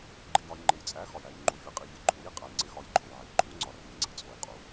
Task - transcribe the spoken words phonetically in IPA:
ɡ͡ǃ i˨ j ɒ˨ j ŋ͡ǃ e˨ j t͡sʼ æ˨˥ x ɒ˨ j æ˨ j ŋ͡ǃ u˨ fʲ e˨˥ qʼ i˨ vʲ ɒ˨˥ ǃʰ u˨˥ j i˨ qʼ æ˨ j ŋ͡ǀ e˨˥ x ɒ˨˥ j ǃʼ o˨ j ʕ i˨ ǃʰ u˨˥ ŋ͡ǀ ɒ˨˥ r i˨ ŋ͡ǀ i˨ t͡sʼ o˨ j qʼ u˨˥

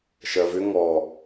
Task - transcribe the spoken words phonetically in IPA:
ʃ ɜ v ʏ ŋ ɔ

